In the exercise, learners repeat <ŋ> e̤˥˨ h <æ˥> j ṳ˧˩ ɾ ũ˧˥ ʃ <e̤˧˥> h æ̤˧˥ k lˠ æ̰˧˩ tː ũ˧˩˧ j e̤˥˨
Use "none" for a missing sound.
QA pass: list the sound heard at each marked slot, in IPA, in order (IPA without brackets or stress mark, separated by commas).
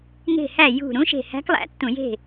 ŋ, æ˥˨, e̤˧˩